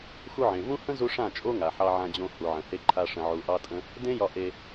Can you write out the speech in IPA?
xu˧ʕẽ˨vũ˦ hə̃˦zu˧ ʂã˦˨t͡ʃʼo˦ŋa˨ ħɑ˧ʕã˧d͡ʑõ˧ hu˨ʕə̃˨he˧ǃʰa˧ ʂə̃˧ʕu˧ʔɑ˦tʼə̃˦ | dẽ˦jɒ˧ ʔe˧

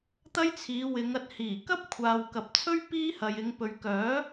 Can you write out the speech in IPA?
t̪ɐ˥jt͡sʰiː˨˧wɪ˨˧ŋ ɐ˧t̚hiː˨˩kɐ˥p̚kʷʰaː˨w kɐ˨p̚t͡sʰɵ˥ɥ piː˥hɐ˨jɪ˨˧ŋ pɵ˨ɥkœː˨˥

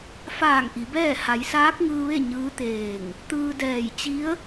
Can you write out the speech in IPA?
faː˧˩ŋ ʔi˩˧bɛː˥˨ ha˩˧jsaː˧˥k̚ŋɯː˧ʋe˥˨ ɲɯː˧˥t̪eː˧˩ŋ | t̪ɯː˧dɛː˧˩j t͡ɕi˧˥ə̯

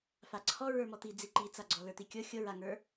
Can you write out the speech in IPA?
faǀʰɔ ɹə˞mɔt̪i d͡ziǃit͡saɡ͡ǀɔ lə˞t̪ikʲɤ xʲɤɹaŋə˞

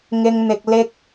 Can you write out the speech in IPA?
ŋɪ˥ŋn̪ɪ˥k̚ lɪ˥k̚

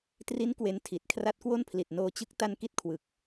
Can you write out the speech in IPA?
tri˦˥n kwe˦˥ntʰi˨˩t̚ kʰra˦˥t̚kwo˥˩npʰli˨˩t̚ noː˧t͡ɕɯ˦˥k̚ta˧n ki˥˩t̚kʰwɯ˨˩k̚

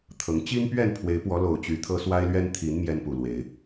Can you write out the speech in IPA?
t̪ʰɤ˨˦ŋ t͡ɕi˦n pɥɛ˥˨npʰwe˨˦ɪ̯ pwɔ˨˦ lo˨˩ʊ̯ t͡ɕy˨˦t̪ʰɤ˦ swa˦ɪ̯lɥɛ˦n t̪ʰi˨˦n mjɛ˦npu˨˩lwe˨˦ɪ̯

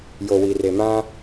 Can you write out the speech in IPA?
jo˨wi˨re˨ mã˦

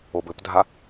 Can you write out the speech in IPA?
obɘpdʱa

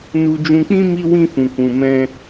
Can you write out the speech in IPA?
nu˧d͡ʒũ˧k͡pĩ˦ mi˦wĩ˦ fũ˧kũ˧mɛ̃˦

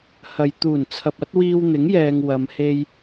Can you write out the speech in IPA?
hɐ˨˧j t̪uː˨˩nt͡sʰɐ˨p̚ɐ˨˥t̚ wiː˧wn̪ɪ˨˥ŋjɛː˨ŋ wɐ˨˧m he˥j

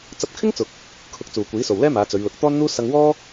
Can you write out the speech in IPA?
t͡sɐ˧p̚kʰɪ˥ŋt͡sʊ˨k̚ | kʰʊ˧k̚t͡suː˨kʷiː˨˥so˨w lɛː˥maː˨˧t͡sɵ˨˧ɥlʊ˨˥k̚ t̪ɔː˥nn̪uː˥ sɐ˧ŋwɔː˥

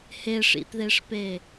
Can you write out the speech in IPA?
heʂḭtðeʂpe

